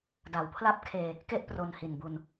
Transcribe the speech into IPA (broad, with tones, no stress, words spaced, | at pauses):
da˩˦wpʰla˥˩p̚kʰeː˧ | ke˥˩ʔ pro˧nhi˨˩nbu˧n